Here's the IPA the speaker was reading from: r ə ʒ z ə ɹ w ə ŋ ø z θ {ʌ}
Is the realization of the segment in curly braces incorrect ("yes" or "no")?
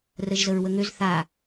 yes